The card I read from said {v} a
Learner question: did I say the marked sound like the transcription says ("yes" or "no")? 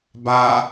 no